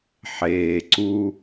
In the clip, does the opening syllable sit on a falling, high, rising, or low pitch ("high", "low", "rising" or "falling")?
low